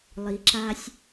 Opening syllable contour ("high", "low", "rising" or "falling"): low